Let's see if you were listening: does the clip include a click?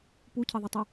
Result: no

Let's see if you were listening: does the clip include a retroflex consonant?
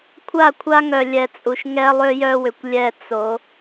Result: no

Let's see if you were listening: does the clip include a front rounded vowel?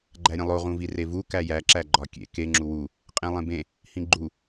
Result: no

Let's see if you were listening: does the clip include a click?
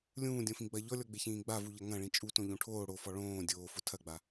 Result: no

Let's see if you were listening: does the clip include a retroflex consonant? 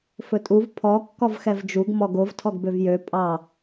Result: no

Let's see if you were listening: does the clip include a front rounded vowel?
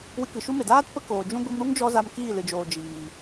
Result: no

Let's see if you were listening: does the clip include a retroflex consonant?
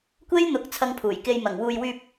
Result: no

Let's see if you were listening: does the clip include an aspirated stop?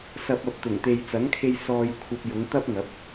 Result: yes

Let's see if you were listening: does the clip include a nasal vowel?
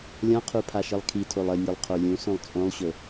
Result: yes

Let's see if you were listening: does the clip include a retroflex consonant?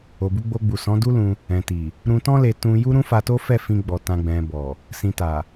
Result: no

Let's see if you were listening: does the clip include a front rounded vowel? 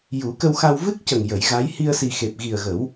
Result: no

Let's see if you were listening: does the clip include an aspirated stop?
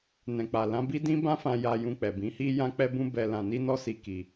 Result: no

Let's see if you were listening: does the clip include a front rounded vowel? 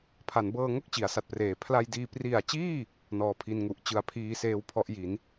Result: no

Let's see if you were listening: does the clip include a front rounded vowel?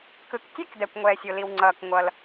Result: no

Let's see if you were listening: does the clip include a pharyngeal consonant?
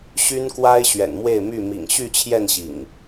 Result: no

